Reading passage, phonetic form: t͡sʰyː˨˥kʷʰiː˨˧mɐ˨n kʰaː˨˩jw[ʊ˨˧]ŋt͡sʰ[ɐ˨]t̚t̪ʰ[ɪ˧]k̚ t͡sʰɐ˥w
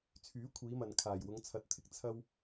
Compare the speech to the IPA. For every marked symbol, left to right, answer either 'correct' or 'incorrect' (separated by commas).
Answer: correct, incorrect, correct